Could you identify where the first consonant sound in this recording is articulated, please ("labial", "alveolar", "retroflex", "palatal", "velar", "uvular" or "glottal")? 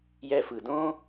palatal